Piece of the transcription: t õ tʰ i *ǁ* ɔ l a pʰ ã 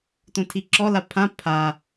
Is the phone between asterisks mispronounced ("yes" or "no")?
no